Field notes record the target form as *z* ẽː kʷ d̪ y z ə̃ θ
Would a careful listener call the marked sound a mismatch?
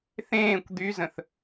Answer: yes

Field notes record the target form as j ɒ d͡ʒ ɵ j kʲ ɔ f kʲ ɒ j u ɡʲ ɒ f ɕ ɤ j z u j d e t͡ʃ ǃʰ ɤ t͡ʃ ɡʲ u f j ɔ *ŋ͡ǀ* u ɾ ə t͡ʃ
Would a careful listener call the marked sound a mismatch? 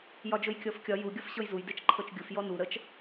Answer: yes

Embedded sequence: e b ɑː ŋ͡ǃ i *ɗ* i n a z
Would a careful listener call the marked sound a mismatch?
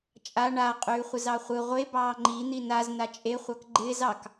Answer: yes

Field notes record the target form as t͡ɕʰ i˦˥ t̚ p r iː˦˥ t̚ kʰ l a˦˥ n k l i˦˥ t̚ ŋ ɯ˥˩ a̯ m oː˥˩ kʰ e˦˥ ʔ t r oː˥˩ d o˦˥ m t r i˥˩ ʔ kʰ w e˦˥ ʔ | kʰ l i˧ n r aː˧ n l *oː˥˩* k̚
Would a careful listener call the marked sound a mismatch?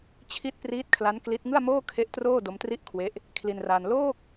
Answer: no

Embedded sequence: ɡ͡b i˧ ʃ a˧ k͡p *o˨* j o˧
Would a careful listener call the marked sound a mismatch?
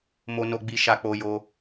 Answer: yes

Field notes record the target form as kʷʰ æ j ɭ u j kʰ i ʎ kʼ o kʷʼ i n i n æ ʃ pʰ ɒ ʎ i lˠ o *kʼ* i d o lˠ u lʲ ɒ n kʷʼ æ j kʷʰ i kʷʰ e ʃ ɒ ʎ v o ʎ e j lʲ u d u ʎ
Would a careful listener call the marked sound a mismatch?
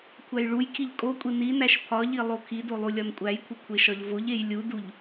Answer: yes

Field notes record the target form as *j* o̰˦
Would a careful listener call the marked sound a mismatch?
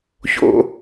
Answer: yes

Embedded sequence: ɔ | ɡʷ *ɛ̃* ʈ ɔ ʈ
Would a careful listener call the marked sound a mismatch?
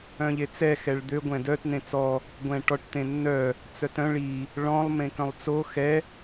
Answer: no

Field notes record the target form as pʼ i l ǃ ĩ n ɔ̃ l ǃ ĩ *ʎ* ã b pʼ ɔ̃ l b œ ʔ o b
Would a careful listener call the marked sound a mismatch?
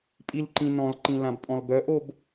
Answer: yes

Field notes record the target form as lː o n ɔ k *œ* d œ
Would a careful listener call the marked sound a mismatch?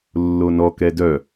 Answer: yes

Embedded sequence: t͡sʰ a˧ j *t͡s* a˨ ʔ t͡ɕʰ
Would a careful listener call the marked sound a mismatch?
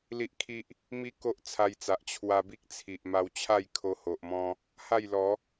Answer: no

